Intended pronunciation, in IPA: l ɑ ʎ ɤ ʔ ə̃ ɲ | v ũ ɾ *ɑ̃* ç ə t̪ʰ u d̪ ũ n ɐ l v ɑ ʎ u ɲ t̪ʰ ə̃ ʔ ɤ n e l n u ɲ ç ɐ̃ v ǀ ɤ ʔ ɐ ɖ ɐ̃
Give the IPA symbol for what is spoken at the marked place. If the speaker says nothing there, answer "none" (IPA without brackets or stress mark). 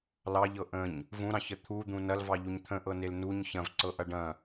ɑ̃